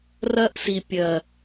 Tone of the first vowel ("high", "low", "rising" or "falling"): high